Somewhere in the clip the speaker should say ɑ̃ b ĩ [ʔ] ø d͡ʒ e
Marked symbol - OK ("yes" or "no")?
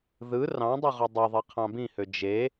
no